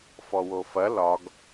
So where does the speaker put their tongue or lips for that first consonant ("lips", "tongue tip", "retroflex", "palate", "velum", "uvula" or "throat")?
lips